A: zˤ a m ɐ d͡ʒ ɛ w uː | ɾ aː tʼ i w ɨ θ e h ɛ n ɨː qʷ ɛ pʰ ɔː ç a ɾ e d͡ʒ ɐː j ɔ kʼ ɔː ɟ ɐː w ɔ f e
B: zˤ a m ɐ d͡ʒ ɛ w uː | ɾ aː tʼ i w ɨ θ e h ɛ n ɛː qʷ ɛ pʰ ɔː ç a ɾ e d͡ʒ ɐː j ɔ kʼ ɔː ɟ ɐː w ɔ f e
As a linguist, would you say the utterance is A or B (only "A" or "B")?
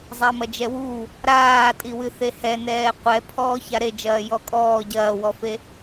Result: B